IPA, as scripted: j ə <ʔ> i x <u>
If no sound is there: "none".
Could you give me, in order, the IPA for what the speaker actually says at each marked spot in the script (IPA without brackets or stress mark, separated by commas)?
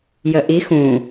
ʔ, ũ